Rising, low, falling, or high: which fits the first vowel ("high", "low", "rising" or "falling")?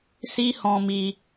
high